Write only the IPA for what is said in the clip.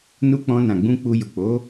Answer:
n u˧ k͡p ɔ̃˧ n ã˨ ɡ͡b ũ˧ k͡p u˧ j u˨ k͡p o˨˦

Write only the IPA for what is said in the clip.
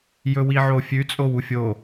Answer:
j ɵ w i ʕ o fʲ ʉ t͡sʼ o w u fʲ o

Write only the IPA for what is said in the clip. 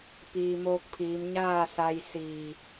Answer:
p iː˩ m oː˧ k̚ pʰ iː˩˧ m ɲ aː˥˨ s a˧ j s iː˧˩

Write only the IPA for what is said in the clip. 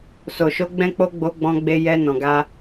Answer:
s o˨ ʃ o˧ ɡ͡b ɛ̃˦ k͡p o˦ ɡ͡b o˧ ɡ͡b ɔ̃˧ ɡ͡b e˧ j ɛ˧ n ɔ̃˨ ɡ a˧

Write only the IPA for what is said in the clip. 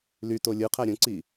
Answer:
l y t o lʲ ɯ qʰ æ ɾʲ ũ ǀ i

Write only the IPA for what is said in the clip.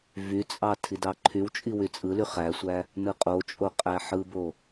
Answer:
v y t͡sʼ ɑ tʰ i d ɑ ǃʰ y w t͡ʃʼ i w y t͡sʼ ɯ l y χ æ sʷ æ | n ɯ qʼ o t͡ʃʼ o qʼ æ ħ ɯ b o

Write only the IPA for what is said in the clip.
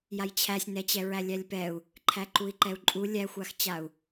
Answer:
j a j t͡ɕʰ æ sʲ n ɛ t͡ɕ ɛ ɹ æ lʲ æ lʲ p ɛ u̯ | ǃʰ æ ǃ u i̯ ǃ ɛ u̯ ǃʼ u lʲ æ xʷ a x t͡ɕ a u̯

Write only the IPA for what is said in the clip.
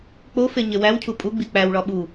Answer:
k͡p o f e ɲ e w æ w cʰ u pʼ u ɡ͡b i k͡p æ w ɭ ɒ ɓ u

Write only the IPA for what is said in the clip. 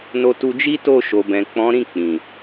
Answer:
n o˧ t u˧ d͡ʒ i˦ t o˦˨ ʃ o˨ b ɛ̃˨ k͡p ɔ̃˨˦ ɾ ĩ˦˨ k͡p ĩ˨

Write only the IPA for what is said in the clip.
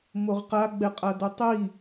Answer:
m o ʁ q a ɡ͡b ɛ qʼ a d ɤ tˤ i

